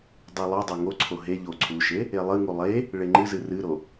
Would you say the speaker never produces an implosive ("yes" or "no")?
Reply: yes